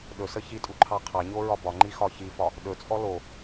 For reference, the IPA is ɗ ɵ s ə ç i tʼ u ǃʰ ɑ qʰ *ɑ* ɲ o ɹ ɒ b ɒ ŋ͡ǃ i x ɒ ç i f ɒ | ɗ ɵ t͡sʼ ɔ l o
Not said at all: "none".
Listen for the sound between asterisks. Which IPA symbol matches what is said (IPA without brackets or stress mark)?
ɑ